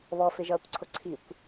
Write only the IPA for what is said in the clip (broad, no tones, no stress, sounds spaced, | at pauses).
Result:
β ɔ f ɪ ʒ ʌː kʷ ǀʰ ʊ ǀʰ i kʷ